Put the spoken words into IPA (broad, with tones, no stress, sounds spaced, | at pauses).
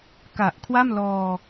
k a˨˩ ʔ kʰ w a˥˩ m l ɔː˧